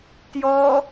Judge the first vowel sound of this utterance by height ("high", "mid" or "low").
mid